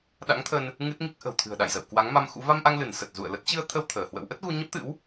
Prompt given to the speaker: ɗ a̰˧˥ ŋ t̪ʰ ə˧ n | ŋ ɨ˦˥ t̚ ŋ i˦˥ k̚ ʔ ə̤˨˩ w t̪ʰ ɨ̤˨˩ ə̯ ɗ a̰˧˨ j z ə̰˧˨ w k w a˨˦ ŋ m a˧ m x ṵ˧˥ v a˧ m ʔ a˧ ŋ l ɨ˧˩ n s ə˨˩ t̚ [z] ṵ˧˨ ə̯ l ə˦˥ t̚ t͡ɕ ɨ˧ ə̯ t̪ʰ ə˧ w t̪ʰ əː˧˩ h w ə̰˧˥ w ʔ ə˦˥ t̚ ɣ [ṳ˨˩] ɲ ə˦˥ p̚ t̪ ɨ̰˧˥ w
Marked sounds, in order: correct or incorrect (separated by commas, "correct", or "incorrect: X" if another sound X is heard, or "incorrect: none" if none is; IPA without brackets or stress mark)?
correct, incorrect: u˧